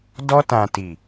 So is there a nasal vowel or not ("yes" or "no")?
yes